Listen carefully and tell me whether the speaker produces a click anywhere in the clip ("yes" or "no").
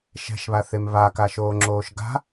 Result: yes